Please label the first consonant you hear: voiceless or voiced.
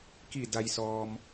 voiceless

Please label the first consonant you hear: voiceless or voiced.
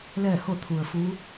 voiced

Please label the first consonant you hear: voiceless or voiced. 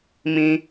voiced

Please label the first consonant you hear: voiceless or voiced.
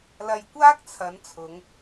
voiced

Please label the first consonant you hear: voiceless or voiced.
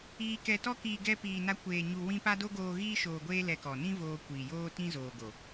voiceless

